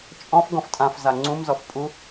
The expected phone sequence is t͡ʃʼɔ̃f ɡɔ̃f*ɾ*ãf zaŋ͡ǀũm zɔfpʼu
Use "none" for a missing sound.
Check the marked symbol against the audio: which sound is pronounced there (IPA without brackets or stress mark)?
tʼ